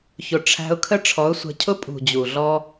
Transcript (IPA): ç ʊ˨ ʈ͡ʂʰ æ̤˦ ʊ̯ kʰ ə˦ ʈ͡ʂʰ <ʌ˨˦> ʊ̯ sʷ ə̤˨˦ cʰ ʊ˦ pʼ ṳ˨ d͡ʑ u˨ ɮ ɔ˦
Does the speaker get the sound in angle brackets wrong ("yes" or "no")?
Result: yes